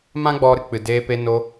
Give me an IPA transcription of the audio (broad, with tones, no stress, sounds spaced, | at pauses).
m ã˦ ɡ͡b ɔ˧ ɾ ɨ˨ k͡p ɨ˨ d eː˧ p e˧ n o˧